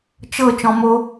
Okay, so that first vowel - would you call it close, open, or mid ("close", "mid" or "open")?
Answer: mid